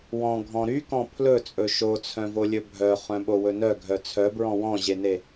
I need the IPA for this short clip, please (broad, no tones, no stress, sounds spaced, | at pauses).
w ɔ̃ ɡʱ ɔ̃ ɾ y k ɔ̃ pʰ l ɵ t͡sʼ ɵ ʃ o t͡sʰ œ̃ v o lʲ ɵ bʱ œ χ œ̃ ɓ o w ɵ n œ ɡʱ œ t͡sʰ œ b ɹ ɔ̃ w ɔ̃ ʑ e n e